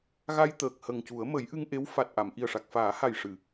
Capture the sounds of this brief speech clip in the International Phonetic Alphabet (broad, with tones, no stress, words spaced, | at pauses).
ɣa˧jt̪əː˨˩k̚ hə˨˩ŋcu˨˩˦ə̯ mə˨˩˦jʔɨ˧ŋʔe˧˥w fa˨˩t̚ʔa˨˩˨m ʔi˨˩ə̯ʂa˨˩k̚faː˨˩˦ha˨˩j ʂɨ˨˩˨